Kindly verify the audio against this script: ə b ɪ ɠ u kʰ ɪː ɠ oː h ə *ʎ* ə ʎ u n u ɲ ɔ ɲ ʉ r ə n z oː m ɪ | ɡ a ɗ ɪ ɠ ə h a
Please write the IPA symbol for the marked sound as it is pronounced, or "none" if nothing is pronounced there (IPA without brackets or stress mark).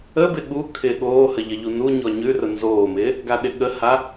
ʎ